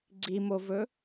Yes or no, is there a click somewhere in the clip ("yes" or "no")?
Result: yes